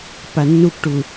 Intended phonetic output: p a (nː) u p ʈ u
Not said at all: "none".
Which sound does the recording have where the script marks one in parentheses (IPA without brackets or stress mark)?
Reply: nː